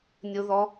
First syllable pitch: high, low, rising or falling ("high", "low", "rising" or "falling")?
high